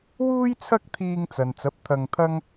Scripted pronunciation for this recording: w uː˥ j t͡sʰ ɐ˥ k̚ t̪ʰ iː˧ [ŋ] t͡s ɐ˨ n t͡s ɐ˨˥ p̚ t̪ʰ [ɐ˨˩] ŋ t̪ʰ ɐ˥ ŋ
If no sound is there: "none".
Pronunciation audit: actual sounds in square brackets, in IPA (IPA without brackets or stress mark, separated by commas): ŋ, ɐ˧